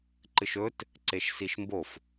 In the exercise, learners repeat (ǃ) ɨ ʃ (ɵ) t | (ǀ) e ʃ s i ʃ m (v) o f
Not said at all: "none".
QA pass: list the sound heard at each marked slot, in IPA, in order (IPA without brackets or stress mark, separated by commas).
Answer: ǃ, ɵ, ǀ, b